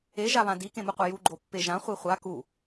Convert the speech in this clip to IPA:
e ʒaβãdi kẽmuqʷeju ɡ͡ǃopːeʒã χʷiχʷa ku

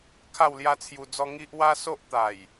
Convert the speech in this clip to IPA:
kʰa˥˧wlja˦t͡sʰju˧d͡zɔ˦ ŋi˦ʔ wa˦so˦ʔt̪a˨˩j

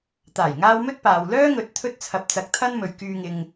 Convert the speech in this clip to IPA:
t̪aː˨˩jŋaː˧w mɵ˥t̚paː˨w lœː˥ŋɵ˨˥t̚ t̪ʰɵ˧t̚t͡sʰɐ˨p̚t͡sɐ˨k̚ t̪ʰɐ˥nmɵ˨ɥ kyː˧ŋɪ˧ŋ

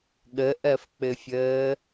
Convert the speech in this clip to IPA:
ɠəʔɜfk͡pɘfʲəː

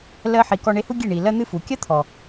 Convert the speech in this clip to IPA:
lɜ˧ħi˨ kɔ˧ɳe˧hu˦ ɡʲe˦˨ ɳi˨ lɜ˦n̪ɨ˦fu˨ kʲɜ˦t̪ʰɔ˨

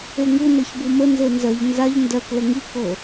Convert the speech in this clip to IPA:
eŋu nɤçbumə nzenzɜʎ nzaʎ ndɜk ləŋi kɤ

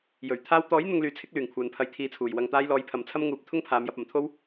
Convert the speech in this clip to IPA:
jɵ˨˩ɥ t̪ʰaː˧w t̪ɔː˨˥j n̪ʊ˧ŋlyː˨t͡sʰɪ˨˥k̚ lyː˨˩ŋkʷʰœː˨npʰɐ˧j t̪ʰiː˨t͡sʰuː˨˩j wɐ˨ŋt̪aː˧jlɔː˨˧j pʰɐ˨mt͡sʰɐ˥mŋuː˨˥p̚ t̪ʰʊ˥ŋpʰaː˨˧mjɐ˧p̚ ɐ˨˩mt̪ʰo˥w

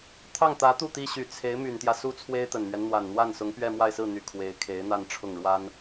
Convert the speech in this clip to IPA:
t̪ʰɑ˥˩ŋt̪ä˧˥t̪u˥˩ t̪i˥ ɕy˨˩t͡sʰe˧˥ɪ̯ my˨˩nt̪jä˦ su˥ t͡sʰwe˥ɪ̯t̪ə˨˩nmɥɛ˦n n̪wa˨˩nn̪wa˥˩nsʊ˧˥ŋ pɥɛ˥˧mwa˥˧ɪ̯sɹ̩˥˩n̪y˨˩ kʰwe˧˥ɪ̯ kʰe˧˥ɪ̯n̪a˥˧nʈ͡ʂʰʊ˥˩ŋ ɻwa˥n

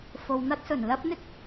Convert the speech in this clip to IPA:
fo˨wn̪ɐ˥t̚sɵ˨˩n lɐ˥p̚ n̪ɪ˥k̚

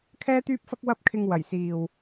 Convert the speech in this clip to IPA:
kʰɛː˧t̪yː˧p̚fɐ˧k̚ wɐ˧p̚kʰɪ˨ŋ wɐ˨˩jsiː˨w

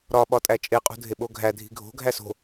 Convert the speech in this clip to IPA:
ɾɒ ɓɒtʼæt͡ʃʼe qʼṳdʱeɓoɡʱæ dʱi̤ɡʱo̤ ɡʱæso̤

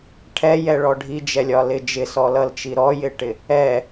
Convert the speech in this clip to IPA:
ʈʰɛjɛɭɔ ɖʱid͡ʒɛlʲɒlɪ d͡ʒɪsɔlʌlt͡ʃi ɾɔjɪʈɪ | ɛ

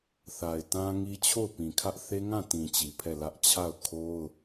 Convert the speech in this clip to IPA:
θa˨ɪ̯tã˦ŋi˦ t͡ɕʰo˦˨ʊ̯pĩ˨kʰä˦ʔ θe˦ŋã˦˨tĩ˨ t͡ɕi˨pʰɛ˦˨lä˦ʔ t͡ɕʰa˦˨ʊ̯kʰo˦ʊ̯

